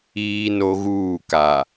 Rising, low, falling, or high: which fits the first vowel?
high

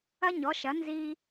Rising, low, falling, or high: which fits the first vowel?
high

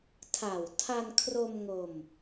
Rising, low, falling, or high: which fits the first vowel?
low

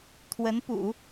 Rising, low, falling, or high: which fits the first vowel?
rising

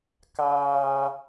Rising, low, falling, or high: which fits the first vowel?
high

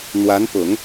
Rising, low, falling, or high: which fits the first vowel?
rising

